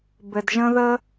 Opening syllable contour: low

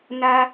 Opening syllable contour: high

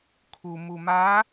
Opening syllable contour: low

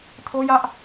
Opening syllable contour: high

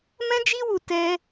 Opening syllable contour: high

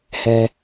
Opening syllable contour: low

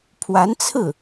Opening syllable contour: rising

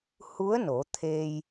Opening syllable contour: rising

